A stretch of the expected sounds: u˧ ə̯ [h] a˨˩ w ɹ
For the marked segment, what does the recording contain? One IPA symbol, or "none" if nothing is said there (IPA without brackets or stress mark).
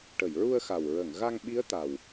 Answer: x